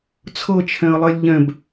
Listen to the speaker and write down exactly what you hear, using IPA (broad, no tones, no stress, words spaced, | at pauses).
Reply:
t͡sʰɤt͡ʃʰɛ̃ə̯lˠelʲ ʎɛ̃b